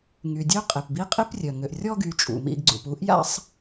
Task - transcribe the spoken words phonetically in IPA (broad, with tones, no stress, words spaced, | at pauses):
ŋy˨dʲø˥ qʼe˨pbi˥ qʼi˥prʲœ˩ŋø˨ʔ rʲɔ˥ɡy˨ t͡ʃʼṵ˩mḭ˨ɡɡ͡ǀṵ˩p u˥ʔja̰˥sˤ